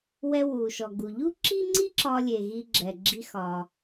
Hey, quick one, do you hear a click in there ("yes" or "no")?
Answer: yes